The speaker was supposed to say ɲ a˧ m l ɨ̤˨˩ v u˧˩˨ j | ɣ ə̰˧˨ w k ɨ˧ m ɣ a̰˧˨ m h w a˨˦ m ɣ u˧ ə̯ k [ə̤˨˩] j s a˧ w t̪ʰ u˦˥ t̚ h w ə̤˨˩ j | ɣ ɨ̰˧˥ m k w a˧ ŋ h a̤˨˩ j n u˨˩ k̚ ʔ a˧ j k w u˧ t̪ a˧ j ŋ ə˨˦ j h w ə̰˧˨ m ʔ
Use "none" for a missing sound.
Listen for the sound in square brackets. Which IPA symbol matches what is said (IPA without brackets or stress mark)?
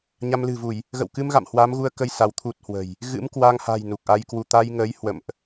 ə˧